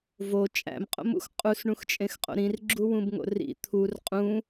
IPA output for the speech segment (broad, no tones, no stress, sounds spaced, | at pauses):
v o t͡ʃʼ æ̰ m qʼ o̰ m ṵ x qʼ u s ɳ ũ x t͡ʃʼ ẽ x qʼ o̰ ɾ ĩ r ɡ͡ǁ u w ũ b ŋ o̰ r ḭ t̪ʰ u r qʼ ũ